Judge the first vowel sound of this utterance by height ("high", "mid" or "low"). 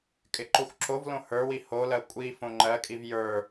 high